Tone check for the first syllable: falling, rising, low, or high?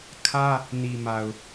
high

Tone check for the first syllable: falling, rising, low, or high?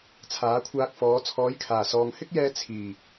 rising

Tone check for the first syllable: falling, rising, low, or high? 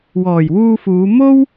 low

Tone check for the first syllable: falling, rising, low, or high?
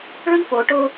high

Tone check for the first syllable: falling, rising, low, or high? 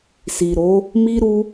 low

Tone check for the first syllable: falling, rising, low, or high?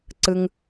high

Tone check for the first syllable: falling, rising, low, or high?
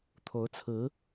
rising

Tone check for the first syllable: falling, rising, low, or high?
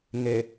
low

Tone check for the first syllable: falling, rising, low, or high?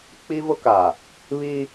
high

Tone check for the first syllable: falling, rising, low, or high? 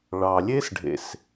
low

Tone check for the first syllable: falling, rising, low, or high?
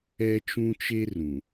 high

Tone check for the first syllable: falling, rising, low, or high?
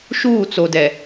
falling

